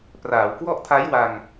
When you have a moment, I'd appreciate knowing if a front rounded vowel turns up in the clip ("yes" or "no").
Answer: no